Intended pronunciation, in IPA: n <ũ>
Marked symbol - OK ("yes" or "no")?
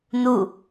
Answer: no